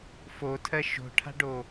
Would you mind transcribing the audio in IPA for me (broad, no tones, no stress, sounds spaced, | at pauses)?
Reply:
f o tʰ ɜ ʃ o̤ ʈʰ a̤ ɖ o